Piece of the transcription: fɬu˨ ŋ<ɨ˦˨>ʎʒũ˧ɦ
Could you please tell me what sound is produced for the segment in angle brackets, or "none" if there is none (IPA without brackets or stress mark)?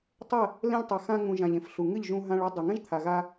ɨ˦˨